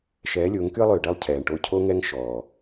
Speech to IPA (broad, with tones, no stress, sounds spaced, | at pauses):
ʃ ɛː˨˦ lʲ ʊː˨˦ ŋ k y˦ ə̯ lˠ ʏː˨ ɖ ɛ˦ lˠ cʰ ɛː˨ ɳ ʈ o˦˨ cʰ o˦ ŋ ɛ˦ ŋ ʃ ɔː˨